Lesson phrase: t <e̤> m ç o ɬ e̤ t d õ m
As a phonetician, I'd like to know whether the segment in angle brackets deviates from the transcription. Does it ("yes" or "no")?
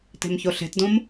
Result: no